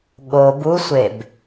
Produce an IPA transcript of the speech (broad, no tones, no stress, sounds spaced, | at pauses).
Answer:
ɠ o b u sʷ e b